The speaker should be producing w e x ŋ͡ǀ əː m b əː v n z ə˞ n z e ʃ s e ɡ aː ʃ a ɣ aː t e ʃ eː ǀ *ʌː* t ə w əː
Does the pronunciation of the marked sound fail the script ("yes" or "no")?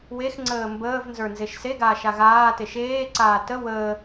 yes